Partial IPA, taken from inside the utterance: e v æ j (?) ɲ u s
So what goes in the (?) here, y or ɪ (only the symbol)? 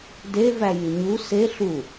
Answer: y